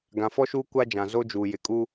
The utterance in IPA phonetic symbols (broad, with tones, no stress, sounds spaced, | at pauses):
ɡ ã˨ f ɔ˦ ʃ uː˦ kʷ a˦ d͡ʒ ã˨ z o˦ d͡ʒ uː˨ j ɪ˨ kʼ u˦